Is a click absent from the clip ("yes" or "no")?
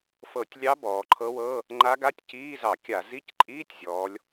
no